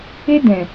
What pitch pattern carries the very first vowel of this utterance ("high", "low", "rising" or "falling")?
high